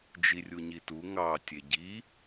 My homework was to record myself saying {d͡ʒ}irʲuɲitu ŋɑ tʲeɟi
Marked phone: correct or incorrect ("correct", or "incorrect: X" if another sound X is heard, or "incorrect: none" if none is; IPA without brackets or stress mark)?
correct